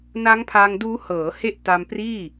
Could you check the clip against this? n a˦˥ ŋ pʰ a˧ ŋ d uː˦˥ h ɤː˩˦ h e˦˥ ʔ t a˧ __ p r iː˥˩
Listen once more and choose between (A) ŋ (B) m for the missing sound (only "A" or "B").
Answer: B